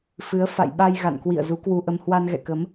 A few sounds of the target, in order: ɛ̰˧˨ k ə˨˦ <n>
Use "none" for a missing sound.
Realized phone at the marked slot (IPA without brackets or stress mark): m